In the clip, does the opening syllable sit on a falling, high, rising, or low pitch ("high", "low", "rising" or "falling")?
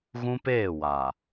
high